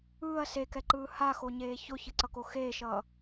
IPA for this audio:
ɯː ɐ̯ s e k ɛ ǃ ɯː h a x o ɲ eː ç o ç ɯ ǀ ʌ k o x eː ʃ ʌ

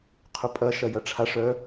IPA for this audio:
qʰ ʊ pʼ ɐ ʃ ɐ j ɐ ʈ͡ʂʰ a ʂ œ

